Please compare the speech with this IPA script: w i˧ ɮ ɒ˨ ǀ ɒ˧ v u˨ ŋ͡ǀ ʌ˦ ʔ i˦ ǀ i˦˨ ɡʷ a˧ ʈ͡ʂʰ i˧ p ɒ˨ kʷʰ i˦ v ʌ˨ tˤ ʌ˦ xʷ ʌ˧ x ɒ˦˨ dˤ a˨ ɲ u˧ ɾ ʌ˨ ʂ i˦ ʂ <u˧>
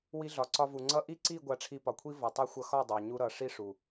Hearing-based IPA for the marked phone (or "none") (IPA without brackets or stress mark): u˨